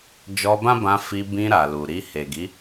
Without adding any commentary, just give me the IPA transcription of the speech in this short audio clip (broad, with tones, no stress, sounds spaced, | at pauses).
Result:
d͡ʒ ɔ˧ b ã˦ b ã˧ f i˧ b ĩ˧ ɾ a˨ l u˨ ɾ i˧ h e˨ ɡ i˨˦